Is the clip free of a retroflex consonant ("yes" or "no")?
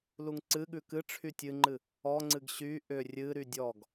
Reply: no